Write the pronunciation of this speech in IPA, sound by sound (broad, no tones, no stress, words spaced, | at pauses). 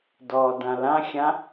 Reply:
dɔːdãlãxʲã